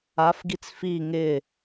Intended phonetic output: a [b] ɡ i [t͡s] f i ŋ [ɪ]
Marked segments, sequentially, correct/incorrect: incorrect, correct, correct

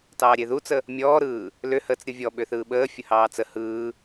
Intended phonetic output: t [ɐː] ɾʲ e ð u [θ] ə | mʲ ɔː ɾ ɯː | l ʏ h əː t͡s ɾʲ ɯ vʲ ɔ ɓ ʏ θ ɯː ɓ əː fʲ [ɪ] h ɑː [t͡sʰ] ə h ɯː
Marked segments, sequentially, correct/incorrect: incorrect, incorrect, incorrect, incorrect

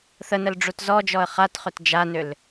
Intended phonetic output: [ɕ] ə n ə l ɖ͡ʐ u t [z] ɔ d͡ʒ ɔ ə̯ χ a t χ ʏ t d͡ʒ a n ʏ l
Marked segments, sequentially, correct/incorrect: incorrect, correct

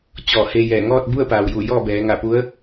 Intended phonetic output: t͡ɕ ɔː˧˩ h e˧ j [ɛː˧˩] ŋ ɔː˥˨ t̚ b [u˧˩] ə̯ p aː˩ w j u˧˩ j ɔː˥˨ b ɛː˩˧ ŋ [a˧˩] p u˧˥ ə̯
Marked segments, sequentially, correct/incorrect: correct, incorrect, correct

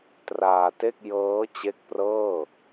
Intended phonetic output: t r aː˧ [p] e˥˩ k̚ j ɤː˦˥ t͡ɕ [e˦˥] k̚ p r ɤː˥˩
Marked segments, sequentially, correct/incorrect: incorrect, correct

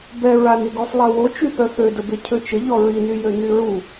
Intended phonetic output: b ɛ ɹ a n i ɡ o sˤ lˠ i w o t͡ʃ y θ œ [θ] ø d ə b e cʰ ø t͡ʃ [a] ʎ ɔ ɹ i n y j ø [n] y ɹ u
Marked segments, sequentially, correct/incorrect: correct, incorrect, correct

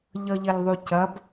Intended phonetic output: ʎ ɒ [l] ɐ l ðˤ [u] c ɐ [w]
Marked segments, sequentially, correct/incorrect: incorrect, correct, incorrect

